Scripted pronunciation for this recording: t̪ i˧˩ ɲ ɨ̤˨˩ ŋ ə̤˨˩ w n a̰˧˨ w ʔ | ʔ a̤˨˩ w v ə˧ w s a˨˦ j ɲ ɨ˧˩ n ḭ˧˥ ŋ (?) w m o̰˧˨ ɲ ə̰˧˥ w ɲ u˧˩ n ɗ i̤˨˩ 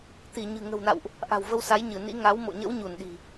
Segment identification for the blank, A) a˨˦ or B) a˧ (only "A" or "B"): A